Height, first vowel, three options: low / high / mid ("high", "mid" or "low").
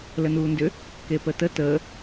mid